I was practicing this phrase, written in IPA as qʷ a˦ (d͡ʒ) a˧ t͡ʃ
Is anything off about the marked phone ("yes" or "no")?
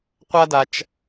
yes